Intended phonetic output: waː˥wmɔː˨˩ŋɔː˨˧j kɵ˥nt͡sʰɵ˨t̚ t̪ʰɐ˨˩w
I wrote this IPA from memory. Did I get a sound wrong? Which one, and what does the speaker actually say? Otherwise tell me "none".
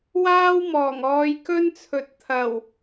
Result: none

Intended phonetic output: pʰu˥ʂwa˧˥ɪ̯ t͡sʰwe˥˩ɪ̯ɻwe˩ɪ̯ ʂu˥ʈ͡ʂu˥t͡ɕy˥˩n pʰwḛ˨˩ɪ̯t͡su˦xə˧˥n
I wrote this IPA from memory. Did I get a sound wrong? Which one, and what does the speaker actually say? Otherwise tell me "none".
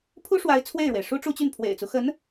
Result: none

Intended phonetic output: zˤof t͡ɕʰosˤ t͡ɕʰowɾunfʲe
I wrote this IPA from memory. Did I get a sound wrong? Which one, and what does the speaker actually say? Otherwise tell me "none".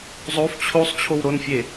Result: u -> o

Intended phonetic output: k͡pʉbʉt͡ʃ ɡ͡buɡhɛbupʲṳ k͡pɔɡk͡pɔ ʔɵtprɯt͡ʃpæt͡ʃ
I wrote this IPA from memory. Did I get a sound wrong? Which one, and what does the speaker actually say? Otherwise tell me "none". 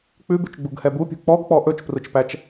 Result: t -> t͡ʃ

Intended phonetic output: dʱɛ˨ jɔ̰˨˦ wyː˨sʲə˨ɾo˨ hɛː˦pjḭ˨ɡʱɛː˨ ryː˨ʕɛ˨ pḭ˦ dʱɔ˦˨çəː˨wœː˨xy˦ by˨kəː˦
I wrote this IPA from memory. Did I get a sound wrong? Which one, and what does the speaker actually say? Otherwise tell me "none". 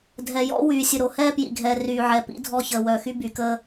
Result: none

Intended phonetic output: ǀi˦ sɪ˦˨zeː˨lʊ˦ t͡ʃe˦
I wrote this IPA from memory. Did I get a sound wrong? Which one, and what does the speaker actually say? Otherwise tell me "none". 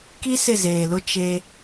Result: ǀ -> k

